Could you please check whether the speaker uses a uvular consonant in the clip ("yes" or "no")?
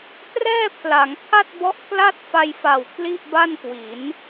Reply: no